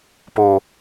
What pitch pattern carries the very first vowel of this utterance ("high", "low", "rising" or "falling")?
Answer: high